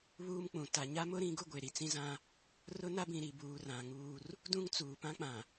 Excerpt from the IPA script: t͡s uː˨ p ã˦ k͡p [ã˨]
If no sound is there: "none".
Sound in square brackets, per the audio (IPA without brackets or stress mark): ã˨